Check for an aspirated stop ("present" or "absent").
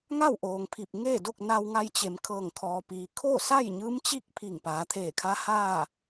present